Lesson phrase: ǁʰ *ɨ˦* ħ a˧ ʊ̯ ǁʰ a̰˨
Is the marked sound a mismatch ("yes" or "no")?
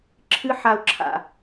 no